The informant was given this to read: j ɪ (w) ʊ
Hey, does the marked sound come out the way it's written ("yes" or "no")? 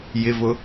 no